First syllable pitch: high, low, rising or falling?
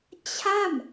falling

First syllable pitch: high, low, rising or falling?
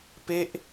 falling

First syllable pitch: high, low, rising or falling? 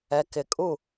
low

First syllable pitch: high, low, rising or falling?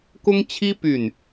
high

